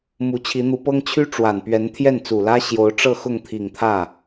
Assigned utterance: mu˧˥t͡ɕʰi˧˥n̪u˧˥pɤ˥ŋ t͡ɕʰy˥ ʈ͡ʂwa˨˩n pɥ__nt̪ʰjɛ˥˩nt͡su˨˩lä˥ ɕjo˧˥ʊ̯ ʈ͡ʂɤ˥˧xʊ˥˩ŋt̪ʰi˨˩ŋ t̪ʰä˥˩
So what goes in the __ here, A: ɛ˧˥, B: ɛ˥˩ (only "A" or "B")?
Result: A